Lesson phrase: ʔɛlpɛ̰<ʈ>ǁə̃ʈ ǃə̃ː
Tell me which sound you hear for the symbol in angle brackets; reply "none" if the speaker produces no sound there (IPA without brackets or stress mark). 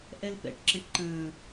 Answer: ʈ